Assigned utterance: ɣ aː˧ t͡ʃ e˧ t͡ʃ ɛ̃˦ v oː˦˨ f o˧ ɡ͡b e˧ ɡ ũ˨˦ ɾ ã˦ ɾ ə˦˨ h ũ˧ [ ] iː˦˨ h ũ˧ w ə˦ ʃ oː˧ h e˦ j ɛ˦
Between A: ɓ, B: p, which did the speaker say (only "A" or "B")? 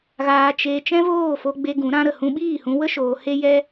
A